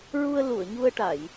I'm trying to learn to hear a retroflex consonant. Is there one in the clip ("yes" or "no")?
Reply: yes